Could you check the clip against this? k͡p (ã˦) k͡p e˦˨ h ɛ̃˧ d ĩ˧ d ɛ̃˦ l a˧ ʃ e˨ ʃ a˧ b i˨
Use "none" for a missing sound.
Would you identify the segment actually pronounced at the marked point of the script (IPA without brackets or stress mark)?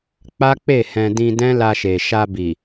a˦